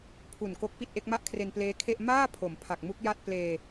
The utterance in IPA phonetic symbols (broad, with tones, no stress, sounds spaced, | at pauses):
pʰ u˨˩ n k o˦˥ k̚ p i˥˩ t̚ ʔ e˦˥ k̚ m a˥˩ ʔ kʰ r e˧ n p l eː˦˥ kʰ e˥˩ ʔ m aː˥˩ pʰ o˩˦ m pʰ a˨˩ k̚ m u˦˥ k̚ j a˥˩ t̚ p l eː˧